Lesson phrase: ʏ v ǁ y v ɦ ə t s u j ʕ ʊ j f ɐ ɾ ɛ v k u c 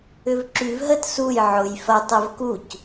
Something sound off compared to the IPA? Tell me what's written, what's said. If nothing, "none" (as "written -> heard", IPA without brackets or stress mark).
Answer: ɾ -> tˤ